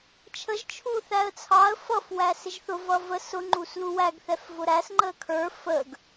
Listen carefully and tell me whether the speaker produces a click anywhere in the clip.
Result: yes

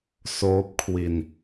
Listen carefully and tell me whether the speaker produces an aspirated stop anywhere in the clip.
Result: yes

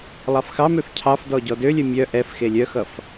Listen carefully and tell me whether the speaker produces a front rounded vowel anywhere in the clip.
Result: yes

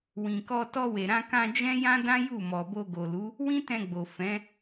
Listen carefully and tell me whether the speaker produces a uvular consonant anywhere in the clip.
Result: no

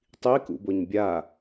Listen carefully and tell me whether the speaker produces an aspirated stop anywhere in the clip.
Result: no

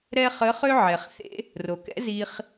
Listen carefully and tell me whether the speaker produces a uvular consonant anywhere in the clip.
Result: yes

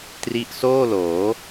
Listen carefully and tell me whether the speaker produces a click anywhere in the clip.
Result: no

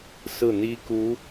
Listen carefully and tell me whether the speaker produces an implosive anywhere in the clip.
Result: no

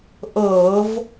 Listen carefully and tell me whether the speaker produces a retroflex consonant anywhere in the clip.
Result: no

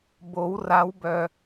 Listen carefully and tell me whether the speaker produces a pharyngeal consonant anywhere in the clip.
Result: no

